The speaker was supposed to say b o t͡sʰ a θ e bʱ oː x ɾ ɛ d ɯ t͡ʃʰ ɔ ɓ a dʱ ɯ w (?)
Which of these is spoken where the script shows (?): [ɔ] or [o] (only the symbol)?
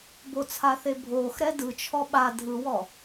ɔ